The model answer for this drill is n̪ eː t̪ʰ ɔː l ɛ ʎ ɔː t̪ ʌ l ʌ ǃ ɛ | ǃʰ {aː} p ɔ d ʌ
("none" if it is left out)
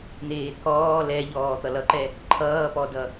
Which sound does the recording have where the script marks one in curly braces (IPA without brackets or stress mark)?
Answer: ʌː